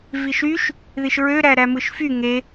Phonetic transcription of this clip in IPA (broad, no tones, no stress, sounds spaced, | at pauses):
v i ʃ y ʃ | ð i ʃ ɹ ø ɾ æ ɾ æ m ɯ ʃ f y ŋ e